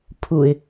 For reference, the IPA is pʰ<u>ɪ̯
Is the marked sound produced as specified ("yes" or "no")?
yes